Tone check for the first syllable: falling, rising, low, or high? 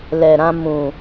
low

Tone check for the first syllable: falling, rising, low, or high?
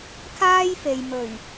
high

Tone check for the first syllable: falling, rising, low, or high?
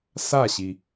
falling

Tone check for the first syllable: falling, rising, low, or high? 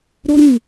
high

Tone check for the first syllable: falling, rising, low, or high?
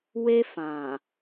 high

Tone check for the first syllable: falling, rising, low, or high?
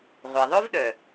low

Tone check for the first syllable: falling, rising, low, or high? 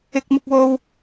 high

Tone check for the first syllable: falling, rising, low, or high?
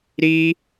high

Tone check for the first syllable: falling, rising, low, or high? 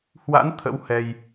rising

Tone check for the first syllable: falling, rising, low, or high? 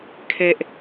low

